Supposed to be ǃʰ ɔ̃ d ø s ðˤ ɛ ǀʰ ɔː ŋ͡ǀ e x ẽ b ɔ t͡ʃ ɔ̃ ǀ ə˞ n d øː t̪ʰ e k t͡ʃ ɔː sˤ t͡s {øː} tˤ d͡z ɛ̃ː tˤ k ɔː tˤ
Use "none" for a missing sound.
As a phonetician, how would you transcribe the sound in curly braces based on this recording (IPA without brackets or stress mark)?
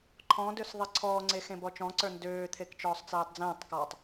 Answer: ɛː